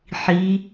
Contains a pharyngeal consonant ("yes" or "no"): yes